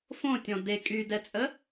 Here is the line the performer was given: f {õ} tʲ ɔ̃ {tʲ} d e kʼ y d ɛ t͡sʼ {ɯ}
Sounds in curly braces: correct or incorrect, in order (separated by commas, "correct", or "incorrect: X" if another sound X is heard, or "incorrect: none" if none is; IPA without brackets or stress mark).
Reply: correct, incorrect: none, incorrect: ə